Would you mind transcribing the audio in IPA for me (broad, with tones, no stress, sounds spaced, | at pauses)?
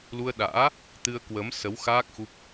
l u˧ ə̯ ɗ a̰ː˧˥ | t̪ ɨ˧ ə̯ k w ə˨˦ m s ə˨˦ w x aː˦˥ k̚ x u˦˥ p̚